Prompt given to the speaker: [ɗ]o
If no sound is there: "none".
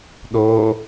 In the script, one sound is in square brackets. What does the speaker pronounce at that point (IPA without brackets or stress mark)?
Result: ɗ